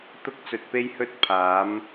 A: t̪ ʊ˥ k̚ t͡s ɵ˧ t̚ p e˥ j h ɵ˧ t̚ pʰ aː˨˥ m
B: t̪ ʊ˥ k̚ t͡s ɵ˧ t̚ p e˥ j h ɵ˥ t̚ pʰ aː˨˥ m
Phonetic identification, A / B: B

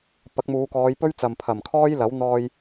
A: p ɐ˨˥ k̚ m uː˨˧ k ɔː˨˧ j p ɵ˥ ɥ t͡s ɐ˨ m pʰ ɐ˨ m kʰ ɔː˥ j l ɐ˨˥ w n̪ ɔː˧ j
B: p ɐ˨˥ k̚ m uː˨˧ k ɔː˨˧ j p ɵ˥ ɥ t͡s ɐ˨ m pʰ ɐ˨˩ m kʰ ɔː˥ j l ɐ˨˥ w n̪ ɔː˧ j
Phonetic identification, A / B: B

